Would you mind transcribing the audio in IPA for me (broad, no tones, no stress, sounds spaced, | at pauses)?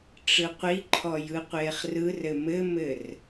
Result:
ʈ͡ʂ ɯ qʷ i ǃʰ ɔ j ɯ qʷ eː χ r ɯ r ɘ m ɘ m ɘ r